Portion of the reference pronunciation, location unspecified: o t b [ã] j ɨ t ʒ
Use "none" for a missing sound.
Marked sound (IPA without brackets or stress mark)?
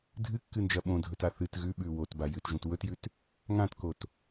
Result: a